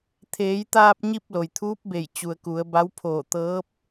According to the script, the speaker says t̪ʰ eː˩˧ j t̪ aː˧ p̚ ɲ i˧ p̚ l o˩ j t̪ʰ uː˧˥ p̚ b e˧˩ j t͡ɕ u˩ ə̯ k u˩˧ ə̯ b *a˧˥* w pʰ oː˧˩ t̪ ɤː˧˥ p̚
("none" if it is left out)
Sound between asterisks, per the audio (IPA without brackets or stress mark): a˧˥